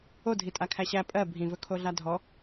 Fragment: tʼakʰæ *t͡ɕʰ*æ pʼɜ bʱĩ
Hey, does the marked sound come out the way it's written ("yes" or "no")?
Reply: no